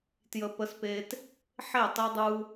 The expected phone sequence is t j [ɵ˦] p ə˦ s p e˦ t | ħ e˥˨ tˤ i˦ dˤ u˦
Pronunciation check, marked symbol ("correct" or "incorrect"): incorrect